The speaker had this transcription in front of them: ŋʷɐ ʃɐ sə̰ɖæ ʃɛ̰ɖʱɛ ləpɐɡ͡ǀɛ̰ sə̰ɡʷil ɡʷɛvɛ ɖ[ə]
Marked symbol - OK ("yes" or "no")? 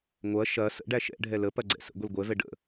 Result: no